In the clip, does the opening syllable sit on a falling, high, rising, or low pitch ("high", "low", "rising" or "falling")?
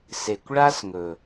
low